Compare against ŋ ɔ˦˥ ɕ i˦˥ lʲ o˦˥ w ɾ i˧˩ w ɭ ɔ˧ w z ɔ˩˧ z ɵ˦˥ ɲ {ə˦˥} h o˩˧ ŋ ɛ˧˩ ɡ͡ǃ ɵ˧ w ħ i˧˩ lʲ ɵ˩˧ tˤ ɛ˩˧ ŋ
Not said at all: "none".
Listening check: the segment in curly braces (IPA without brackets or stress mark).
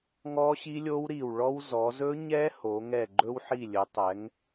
ɛ˦˥